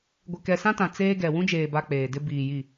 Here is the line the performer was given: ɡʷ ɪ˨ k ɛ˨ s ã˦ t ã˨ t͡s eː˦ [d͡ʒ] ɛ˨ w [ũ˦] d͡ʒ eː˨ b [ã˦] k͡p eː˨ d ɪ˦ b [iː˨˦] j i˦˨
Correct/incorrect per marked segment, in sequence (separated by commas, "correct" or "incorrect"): incorrect, correct, incorrect, incorrect